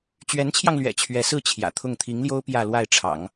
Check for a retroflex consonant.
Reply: present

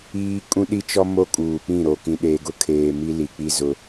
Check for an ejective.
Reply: present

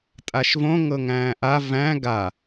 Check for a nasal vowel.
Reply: present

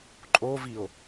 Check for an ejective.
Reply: present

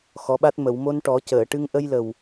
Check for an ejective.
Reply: absent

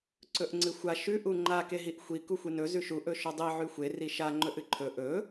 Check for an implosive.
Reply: absent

